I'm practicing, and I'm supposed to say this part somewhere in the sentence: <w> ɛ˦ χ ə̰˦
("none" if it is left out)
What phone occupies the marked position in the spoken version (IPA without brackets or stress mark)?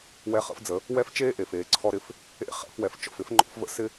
w